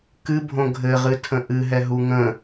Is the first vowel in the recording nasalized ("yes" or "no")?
no